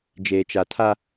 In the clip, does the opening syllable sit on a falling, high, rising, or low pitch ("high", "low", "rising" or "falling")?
low